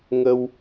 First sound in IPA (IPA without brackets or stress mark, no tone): ŋ